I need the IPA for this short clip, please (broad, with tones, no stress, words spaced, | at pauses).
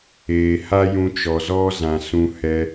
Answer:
eː˨ha˦jũ˧ t͡ʃɔ˨zɔ˦ zã˨ sũ˧hɛ˧